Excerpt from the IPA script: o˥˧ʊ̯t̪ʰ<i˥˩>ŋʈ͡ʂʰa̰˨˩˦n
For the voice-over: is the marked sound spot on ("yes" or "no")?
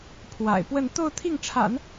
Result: yes